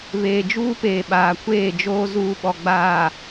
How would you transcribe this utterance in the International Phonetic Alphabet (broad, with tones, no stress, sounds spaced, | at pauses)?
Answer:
β eː˨ d͡ʒ uː˦ p eː˨ ɓ aː˨ kʷ eː˦˨ d͡ʒ oː˦ z uː˦ ɓ ɔ˨ ɡ͡b aː˨